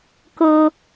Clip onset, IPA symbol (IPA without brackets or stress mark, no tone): k